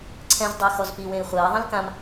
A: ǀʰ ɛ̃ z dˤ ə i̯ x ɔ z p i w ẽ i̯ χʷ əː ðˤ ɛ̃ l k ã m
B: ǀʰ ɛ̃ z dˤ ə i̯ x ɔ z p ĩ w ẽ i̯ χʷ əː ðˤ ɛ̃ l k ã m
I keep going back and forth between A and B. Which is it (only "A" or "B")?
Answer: A